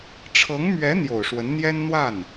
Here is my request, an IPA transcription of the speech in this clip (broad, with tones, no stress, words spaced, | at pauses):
ʈ͡ʂʰɤ˧˥ŋmɥɛ˧˥ n̪jo˨˩ʊ̯ʂwə˧˥nn̪jɛ˥n n̪wa˥˩n